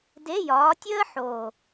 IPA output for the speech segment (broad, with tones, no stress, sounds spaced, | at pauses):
d e˧˥˧ j ɒː˨˦ tʲ əː˥ ħ oː˨˩